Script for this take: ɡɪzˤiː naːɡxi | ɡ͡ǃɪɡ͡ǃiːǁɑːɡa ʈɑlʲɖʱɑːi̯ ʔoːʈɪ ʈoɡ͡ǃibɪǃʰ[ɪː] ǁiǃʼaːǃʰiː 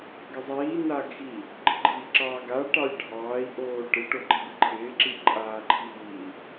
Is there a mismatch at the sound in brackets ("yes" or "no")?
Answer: no